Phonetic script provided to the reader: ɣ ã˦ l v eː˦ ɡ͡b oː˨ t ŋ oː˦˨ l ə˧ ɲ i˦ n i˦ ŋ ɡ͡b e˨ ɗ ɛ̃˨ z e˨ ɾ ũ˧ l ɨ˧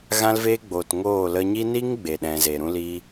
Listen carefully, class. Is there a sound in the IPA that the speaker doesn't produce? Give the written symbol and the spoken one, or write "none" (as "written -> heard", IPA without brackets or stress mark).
ɨ˧ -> i˧